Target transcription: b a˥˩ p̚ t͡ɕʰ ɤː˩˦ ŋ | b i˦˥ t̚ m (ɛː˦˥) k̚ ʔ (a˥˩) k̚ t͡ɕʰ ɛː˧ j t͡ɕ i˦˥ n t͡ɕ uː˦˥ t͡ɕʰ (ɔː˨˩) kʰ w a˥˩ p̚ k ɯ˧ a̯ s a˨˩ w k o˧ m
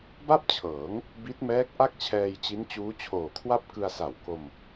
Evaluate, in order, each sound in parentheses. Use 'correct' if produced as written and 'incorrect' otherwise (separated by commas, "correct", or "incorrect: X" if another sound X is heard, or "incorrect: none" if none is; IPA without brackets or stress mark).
correct, correct, incorrect: oː˨˩